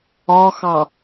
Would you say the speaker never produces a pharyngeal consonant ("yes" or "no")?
yes